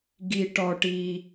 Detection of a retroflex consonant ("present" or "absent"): present